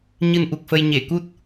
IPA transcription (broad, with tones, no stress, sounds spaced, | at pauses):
ɲ ɨ˧ n ʔ u˨˩ k̚ f ə˧ j ɲ e˧˩ k u˦˥ t̚